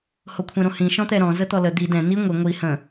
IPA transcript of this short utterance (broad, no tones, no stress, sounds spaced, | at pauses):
h o kʷʰ ɛ̃ ɾ õ h ĩ ʃ ɔ̃ t̪ ɛ ɾ ɔ̃ z ə t̪ ɔ l ə d̪ i d ɛ̃ n̪ i ŋʷ i ŋʷ i h ə̃